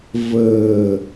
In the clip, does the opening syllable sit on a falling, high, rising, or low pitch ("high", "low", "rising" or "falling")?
low